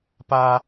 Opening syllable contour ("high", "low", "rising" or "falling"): high